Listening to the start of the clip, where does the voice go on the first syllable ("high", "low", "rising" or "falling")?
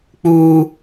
high